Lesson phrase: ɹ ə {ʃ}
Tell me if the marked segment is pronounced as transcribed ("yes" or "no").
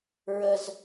no